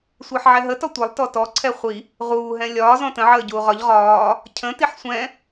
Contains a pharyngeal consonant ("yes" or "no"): yes